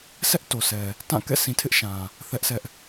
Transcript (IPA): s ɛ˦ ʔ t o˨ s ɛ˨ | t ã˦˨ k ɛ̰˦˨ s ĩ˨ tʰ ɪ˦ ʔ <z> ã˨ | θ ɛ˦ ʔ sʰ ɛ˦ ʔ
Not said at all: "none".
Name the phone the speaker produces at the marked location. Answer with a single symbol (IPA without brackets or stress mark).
ʃ